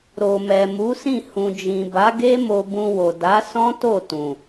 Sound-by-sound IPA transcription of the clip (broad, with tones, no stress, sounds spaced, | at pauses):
ɾ o˨ m ɛ˨ m u˨˦ s ĩ˦˨ h ũ˨ d͡ʒ ĩ˨ b a˨˦ ɡ e˦ m o˧ b ũ˧ w o˨ d a˨˦ s ɔ̃˦ t o˦˨ t ũ˨